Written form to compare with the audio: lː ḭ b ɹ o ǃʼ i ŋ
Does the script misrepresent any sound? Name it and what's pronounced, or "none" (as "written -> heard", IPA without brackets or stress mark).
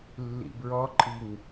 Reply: o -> ɔ